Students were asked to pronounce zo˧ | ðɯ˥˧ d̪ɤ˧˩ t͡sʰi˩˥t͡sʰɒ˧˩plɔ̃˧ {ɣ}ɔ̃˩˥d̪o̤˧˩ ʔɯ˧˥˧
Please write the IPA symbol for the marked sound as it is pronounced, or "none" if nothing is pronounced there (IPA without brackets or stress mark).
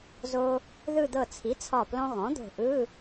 ɣ